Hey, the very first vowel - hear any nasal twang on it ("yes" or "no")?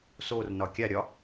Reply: no